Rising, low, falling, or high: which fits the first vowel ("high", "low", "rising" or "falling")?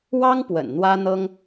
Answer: high